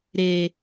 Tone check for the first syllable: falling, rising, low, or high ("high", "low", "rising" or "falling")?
low